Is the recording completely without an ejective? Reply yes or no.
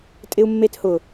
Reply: no